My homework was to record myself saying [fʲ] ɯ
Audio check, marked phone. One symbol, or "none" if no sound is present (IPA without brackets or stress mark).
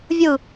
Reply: vʲ